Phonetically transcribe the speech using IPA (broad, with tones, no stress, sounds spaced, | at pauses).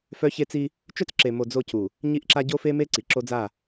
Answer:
f œ˦ ç e˦ t͡s i˦ | t͡ʃ œ˦ t͡s ǁ e˨ m o˨ d͡z o˦˨ c u˨ | ɲ i˦ ʔ ǁ a˦ ɟ o˦ f e˦ m e˦ ǀ i˨ ǁ o˦ d͡z a˦˨